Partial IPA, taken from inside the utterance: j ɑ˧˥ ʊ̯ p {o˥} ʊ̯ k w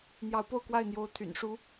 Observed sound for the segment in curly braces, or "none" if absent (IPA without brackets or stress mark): o˥˧